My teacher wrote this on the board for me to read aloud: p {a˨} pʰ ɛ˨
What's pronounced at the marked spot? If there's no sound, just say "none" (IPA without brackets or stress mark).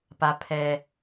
a˨